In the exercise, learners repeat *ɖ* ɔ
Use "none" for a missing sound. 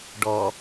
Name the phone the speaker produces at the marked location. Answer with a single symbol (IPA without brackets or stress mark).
ɖ